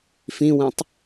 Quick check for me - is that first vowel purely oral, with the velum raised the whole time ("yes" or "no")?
no